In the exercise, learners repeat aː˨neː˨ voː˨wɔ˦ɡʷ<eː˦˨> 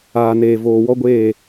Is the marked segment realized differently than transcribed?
no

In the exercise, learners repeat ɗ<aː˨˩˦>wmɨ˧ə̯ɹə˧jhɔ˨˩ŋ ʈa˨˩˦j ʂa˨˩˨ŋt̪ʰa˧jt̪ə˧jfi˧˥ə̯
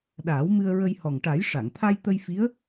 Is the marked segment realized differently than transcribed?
no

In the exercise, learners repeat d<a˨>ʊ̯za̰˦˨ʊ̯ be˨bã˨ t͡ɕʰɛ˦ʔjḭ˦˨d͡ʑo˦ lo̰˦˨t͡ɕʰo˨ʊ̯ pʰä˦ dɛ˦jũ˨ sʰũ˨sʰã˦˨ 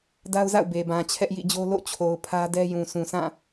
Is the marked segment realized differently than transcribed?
yes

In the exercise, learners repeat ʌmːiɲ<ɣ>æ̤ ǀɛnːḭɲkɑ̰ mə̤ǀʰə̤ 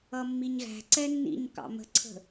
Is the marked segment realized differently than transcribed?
no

